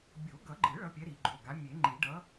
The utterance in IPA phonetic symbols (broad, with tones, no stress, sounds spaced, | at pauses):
bʲ o˨˩˦ ɡ ʌ˨˩˦ ɡ͡ǃ ɯ˨˩˦ ɭ ʌ˨˥ pʲ ɛ˨˥ ɾ i˨˩˦ ɡ͡ǃ o˩˧˩ ɡ a˨˥ mʲ e˨˩˦ ŋ͡ǃ i˨˩˦ ɖ ʌ˨˥